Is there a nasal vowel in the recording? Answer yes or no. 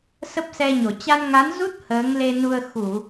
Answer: no